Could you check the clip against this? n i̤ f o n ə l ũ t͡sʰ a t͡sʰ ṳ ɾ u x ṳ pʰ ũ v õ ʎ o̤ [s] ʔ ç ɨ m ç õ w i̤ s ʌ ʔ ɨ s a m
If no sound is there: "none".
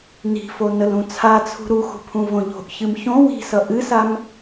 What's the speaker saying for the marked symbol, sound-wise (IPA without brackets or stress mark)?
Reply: none